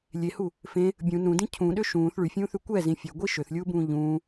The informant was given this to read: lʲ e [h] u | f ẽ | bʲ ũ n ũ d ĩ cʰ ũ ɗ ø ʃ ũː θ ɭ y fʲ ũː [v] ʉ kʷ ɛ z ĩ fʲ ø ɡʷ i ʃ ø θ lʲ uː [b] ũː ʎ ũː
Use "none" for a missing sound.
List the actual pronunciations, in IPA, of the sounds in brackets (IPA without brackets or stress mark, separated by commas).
h, θ, b